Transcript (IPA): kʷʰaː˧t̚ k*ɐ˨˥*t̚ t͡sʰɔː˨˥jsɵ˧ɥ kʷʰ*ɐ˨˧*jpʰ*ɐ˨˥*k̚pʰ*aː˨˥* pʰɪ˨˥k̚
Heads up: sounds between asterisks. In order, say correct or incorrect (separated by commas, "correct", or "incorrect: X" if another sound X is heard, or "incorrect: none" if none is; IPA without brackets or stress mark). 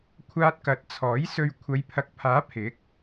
correct, correct, correct, correct